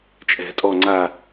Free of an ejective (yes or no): no